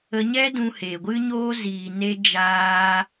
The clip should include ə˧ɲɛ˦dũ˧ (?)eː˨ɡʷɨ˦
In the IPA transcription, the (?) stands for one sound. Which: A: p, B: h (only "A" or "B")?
B